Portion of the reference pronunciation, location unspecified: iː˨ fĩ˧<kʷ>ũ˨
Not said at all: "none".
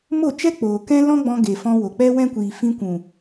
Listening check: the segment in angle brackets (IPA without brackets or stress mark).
kʷ